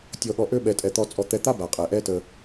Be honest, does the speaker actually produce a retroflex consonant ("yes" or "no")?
no